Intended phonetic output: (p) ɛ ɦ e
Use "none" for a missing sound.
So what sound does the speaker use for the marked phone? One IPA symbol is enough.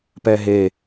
p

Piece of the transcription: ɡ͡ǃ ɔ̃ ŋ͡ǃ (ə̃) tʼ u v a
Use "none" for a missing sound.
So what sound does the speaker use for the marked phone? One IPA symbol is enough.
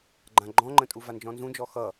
ə̃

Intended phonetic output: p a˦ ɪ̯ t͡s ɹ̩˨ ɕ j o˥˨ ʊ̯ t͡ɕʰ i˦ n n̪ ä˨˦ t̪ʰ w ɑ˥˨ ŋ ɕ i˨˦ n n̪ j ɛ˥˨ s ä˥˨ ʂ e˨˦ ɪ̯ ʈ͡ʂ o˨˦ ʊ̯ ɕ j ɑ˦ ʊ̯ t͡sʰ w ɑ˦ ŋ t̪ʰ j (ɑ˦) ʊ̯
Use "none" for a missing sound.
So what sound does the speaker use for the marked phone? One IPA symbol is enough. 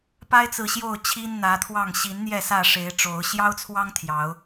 ɑ˨˦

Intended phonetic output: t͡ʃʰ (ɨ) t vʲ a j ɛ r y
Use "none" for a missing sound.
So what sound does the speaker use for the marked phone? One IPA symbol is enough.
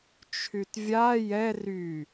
y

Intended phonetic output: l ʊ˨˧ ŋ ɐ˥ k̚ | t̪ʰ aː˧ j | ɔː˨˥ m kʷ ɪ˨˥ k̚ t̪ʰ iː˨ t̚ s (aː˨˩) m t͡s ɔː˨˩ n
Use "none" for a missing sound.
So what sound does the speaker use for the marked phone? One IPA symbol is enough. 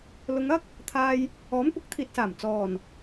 aː˨˩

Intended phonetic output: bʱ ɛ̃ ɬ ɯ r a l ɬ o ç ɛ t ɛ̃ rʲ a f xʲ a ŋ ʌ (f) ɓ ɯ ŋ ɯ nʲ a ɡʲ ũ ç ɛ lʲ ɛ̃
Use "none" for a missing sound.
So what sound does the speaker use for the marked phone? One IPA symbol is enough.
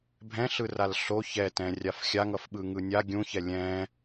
f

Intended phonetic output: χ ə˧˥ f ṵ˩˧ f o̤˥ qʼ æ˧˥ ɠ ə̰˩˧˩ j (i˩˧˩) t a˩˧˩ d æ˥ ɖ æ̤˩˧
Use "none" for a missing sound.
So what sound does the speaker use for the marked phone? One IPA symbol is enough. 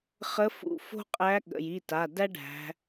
i˩˧˩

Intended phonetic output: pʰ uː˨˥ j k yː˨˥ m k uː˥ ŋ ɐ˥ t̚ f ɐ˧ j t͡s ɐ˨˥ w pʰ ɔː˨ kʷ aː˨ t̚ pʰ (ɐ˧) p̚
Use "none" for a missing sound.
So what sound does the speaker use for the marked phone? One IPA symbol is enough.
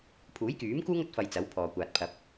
ɐ˧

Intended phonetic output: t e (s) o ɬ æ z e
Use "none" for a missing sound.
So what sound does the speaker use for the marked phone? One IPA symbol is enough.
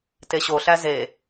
ɕ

